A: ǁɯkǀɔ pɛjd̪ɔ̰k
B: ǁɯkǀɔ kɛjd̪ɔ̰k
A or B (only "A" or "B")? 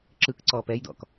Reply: A